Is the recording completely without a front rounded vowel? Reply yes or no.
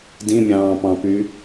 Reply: no